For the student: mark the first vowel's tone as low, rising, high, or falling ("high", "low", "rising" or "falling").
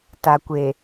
low